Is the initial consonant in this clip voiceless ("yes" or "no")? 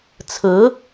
yes